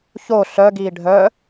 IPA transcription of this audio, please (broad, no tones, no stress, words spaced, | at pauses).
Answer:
ço ɬœɡiː ɖʱœ